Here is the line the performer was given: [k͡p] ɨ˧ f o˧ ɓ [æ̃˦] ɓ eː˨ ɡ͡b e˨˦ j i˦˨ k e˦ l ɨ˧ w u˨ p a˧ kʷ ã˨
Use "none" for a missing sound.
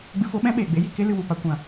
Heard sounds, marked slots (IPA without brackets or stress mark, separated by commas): ɡ͡b, ɛ̃˦